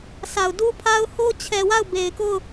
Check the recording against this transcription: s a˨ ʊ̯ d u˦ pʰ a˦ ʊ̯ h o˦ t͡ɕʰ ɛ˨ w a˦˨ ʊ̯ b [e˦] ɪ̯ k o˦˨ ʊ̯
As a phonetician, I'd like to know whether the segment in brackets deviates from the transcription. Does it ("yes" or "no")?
yes